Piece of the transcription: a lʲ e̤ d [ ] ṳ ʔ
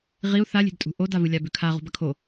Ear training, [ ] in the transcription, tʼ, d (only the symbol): tʼ